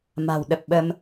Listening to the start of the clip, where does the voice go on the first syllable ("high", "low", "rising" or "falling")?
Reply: low